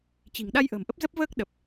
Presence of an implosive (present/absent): present